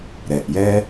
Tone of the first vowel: low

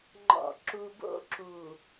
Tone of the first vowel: low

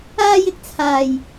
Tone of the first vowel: high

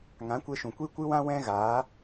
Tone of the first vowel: rising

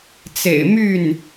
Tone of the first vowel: low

